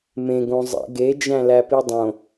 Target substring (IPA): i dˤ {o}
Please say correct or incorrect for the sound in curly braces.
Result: incorrect